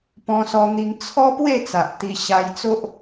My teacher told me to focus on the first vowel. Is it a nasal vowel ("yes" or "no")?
yes